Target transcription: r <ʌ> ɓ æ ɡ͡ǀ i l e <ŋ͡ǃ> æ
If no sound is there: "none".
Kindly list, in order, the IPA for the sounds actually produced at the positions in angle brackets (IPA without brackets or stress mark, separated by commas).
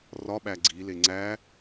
ɒ, ŋ͡ǀ